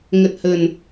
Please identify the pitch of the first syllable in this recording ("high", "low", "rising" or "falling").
low